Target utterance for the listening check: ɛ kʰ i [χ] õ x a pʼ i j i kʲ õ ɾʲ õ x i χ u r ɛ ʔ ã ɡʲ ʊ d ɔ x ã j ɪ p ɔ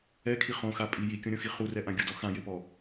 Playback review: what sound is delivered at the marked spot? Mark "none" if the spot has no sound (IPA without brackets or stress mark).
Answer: χ